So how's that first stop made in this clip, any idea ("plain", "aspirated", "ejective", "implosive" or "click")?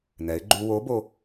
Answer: click